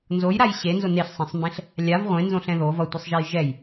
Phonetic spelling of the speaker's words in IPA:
nzojɾaj ɕenzo neɬsˤẽsˤmbẽɬ | lʲav ʁʷẽnzõɬɛ̃ ðov ʌtʷesˤʒɛj ʒɛj

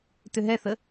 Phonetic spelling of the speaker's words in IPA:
tʏɦɛθə

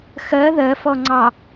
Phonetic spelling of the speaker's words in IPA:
xɜ ðɜfɔŋ͡ǀɑ

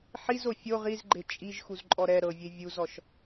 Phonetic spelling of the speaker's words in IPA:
ħizo fʲo ʁizɡ͡ǃe t͡ʃʼiʒ xuzǃʼɔɾɛ ɾɤvʲe vʲuzɔʃ

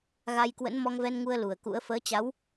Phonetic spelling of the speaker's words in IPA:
ɣa˧jkwə̰˧˥n mɔ˧ŋvɛ˧nŋu˧ə̯ lu˧˩ə̯kṵ˧˥ə̯ fəː˨˦t͡ɕa˨˦w

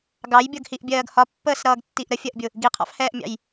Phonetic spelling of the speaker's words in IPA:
ɡɑjbʲʌɡhiʔbʲɜːɡ hɒpːəːsɾʌːɡtːiʔ ɾəfʲɜʔbʲʊ | ɡiqʰɑ̰fhɛːʔmʲɑ̰j

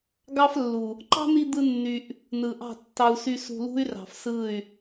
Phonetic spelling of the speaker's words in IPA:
ɡɑ˦flːu˨ | ǃɑ̤˦n̪i˧ d̪ɯ˦nːy˧ʔ | nɯ˨ʔɑ̤˦˨ tːɑ˧u̯ sy˧ sṳ˧lṳ˦y̯ rɑ̤˨fsɯ˦˨y̯

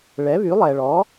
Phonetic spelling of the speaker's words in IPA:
ɭɛ˩˥βy˩˥ lˠɛ˩ɭɔ˩˥

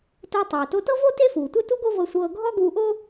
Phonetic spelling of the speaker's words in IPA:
to˧tˤoː˩ to˧tɤ˥vo˥ te˥fuː˩tʷɤ˥tu˥ ɡo˥vɤ˧sʷɤː˧ ɡʱɔ˥ ɡuː˧ʔo˥

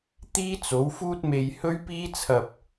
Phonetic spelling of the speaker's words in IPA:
t̪iː˥t͡so˨˥wfuː˥t̚me˧j hɵ˥ɥpiː˥t͡sʰɐ˧p̚

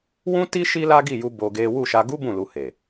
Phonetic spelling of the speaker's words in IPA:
wũ˦ ti˦ ʃi˦la˦ɡi˦˨ju˧ bo˧ɡe˦ wu˦˨ʃa˧ ɡu˦ bũ˦˨lu˧ he˨

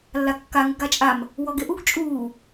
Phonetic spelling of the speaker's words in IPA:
lːakːa ŋəɡat͡ʃʼam | wɔɡeʔuɡ t͡ʃʼuː

